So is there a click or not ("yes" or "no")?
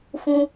no